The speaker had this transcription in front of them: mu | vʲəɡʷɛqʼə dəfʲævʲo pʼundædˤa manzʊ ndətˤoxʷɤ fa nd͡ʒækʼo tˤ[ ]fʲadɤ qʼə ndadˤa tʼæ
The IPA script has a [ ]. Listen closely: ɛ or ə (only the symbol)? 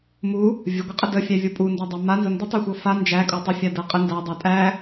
ə